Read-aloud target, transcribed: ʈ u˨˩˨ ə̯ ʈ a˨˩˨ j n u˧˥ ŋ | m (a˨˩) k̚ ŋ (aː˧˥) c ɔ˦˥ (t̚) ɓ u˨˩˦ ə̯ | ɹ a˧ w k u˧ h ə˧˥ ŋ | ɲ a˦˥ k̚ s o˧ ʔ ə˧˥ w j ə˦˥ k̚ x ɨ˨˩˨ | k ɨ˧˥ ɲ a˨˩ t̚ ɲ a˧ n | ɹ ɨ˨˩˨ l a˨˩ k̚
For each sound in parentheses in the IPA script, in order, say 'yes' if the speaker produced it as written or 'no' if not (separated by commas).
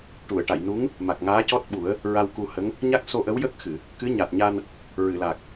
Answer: yes, yes, yes